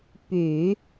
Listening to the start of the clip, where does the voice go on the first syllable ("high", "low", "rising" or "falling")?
low